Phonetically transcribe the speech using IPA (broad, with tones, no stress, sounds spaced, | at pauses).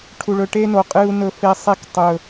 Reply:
ʈʰ u˨ ɭ ɵ˨ ʈ e˦ n o˨ qʼ ɨ˦ u̯ n ɵ˦ f e˦ sˤ e˦ k tˤ ɵ˨